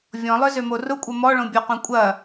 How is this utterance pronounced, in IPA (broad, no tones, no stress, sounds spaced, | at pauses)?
vʲ ɔ̃ lˠ œ z ø m o r ʊ kʷʼ ɐ m ɔ ɭ õ bʲ o q õ kʷʼ ɐ